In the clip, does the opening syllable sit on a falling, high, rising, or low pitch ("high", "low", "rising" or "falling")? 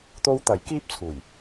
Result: high